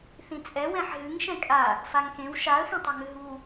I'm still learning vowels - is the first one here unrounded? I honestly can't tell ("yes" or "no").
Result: yes